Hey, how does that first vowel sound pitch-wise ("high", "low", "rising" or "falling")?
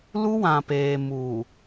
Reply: high